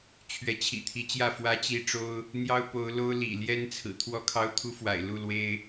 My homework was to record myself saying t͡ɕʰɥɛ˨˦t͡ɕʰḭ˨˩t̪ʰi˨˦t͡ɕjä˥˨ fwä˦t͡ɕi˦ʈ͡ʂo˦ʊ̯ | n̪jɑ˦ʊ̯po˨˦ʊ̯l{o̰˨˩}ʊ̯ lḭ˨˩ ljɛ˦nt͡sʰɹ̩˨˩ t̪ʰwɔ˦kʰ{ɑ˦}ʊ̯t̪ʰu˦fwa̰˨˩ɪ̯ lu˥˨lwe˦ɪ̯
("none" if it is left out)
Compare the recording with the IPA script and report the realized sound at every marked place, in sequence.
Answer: o˦, ɑ˦

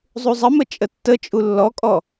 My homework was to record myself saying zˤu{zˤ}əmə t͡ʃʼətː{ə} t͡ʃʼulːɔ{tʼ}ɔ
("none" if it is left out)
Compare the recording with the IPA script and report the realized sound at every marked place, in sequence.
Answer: zˤ, ə, kʼ

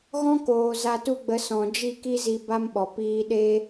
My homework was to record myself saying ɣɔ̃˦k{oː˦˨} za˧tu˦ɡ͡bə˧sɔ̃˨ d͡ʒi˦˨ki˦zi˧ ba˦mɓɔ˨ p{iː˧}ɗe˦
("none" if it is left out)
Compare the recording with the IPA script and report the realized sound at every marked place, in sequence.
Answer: oː˨, iː˧

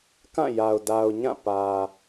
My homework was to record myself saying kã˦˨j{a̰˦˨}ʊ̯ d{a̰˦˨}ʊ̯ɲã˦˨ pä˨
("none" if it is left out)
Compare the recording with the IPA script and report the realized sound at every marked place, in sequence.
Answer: a˨, a˨

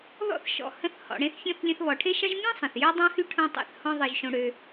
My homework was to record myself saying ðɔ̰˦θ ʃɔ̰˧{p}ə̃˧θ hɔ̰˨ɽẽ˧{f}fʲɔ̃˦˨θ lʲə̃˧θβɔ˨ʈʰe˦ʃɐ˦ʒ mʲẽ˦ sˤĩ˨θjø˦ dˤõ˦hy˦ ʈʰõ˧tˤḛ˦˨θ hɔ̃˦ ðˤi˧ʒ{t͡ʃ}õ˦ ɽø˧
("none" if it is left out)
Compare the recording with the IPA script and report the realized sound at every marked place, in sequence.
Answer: h, θ, ʃ

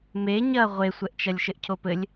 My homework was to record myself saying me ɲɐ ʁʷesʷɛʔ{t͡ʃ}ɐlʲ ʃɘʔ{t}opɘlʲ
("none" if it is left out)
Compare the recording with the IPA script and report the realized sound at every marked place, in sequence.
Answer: t͡ʃ, cʰ

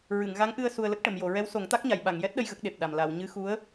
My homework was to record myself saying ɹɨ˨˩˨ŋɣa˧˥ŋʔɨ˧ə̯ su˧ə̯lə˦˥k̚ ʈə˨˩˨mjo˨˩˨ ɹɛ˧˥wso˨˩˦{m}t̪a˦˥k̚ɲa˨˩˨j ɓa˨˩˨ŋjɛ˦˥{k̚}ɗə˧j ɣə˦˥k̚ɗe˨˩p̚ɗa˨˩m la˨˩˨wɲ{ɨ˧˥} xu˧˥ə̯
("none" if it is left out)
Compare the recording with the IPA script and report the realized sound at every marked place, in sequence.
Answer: ŋ, t̚, ɨ˧˥

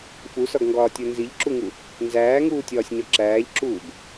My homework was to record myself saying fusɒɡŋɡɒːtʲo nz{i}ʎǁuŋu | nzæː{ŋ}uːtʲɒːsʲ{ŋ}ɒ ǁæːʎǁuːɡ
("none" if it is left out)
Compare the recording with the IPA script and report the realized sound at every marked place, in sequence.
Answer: i, ŋ, ɲ

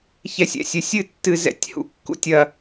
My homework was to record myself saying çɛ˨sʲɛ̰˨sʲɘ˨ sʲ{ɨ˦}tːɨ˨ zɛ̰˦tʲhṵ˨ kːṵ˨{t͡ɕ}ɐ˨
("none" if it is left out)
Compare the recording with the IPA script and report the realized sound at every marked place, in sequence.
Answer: ɨ˦˨, tʲ

